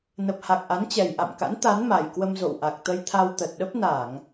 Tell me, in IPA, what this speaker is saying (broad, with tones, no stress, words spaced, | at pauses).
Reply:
nə˨˩p̚ha˨˩k̚ ʔa˨˦nt͡ɕɛ˨˩jʔa̰˧˨m ka̰˧˥nt̪a˨˦n ma˨˩jkwə˧mzo̰˧˨wʔa˨˩k̚ t̪ə˧jt̪ʰa˧wt̪ə˨˩t̚ ɗə˦˥p̚na˧˩˨ŋ